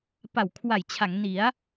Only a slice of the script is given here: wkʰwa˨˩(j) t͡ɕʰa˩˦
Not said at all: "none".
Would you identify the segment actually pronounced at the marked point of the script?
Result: j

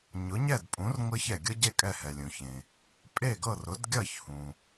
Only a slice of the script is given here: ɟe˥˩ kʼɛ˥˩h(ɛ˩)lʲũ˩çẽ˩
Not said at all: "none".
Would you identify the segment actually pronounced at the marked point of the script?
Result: ɛ˩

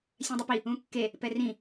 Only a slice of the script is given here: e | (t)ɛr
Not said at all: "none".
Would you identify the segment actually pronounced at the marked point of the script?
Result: p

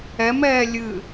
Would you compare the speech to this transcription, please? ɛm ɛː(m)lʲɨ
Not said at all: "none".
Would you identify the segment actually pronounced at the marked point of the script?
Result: none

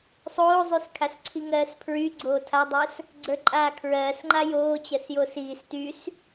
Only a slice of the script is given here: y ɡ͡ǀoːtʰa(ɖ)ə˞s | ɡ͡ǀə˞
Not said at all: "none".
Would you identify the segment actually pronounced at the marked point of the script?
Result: dˤ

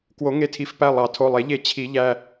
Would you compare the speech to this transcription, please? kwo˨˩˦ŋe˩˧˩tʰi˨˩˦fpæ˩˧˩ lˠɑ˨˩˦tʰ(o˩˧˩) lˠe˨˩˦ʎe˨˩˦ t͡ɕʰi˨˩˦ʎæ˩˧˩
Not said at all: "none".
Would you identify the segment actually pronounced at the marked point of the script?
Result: o˩˧˩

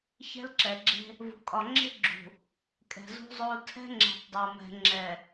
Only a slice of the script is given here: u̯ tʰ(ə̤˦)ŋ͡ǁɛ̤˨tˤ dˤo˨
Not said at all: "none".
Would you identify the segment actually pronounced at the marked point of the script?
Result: ɛ̤˦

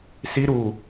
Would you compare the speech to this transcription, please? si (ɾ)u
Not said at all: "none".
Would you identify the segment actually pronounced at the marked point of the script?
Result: ɾ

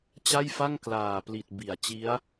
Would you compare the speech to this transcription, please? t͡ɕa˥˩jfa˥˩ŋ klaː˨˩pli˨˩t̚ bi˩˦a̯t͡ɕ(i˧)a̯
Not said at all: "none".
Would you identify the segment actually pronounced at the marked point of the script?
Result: i˦˥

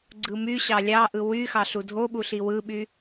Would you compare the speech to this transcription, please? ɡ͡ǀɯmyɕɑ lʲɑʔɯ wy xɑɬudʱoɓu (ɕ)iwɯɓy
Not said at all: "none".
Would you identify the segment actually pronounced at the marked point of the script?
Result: ɬ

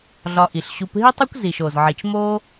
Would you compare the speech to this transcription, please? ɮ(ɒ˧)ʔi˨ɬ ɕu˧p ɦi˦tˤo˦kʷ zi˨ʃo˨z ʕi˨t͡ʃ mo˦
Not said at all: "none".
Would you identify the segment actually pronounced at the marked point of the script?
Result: ɒ˧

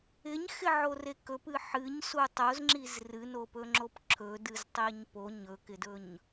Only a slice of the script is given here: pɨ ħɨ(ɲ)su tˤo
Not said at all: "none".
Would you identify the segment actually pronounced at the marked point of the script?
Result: ɲ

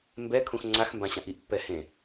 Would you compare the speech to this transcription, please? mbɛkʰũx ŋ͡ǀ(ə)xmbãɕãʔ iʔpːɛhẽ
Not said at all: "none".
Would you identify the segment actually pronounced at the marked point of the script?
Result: a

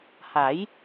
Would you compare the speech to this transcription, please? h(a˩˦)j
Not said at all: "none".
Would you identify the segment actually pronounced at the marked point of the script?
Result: a˩˦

